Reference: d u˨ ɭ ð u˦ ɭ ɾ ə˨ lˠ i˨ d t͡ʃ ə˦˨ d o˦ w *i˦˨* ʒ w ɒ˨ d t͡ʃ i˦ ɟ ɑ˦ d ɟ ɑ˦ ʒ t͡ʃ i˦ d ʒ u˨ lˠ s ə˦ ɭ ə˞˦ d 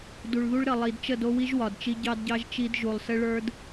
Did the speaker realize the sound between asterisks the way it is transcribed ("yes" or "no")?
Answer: no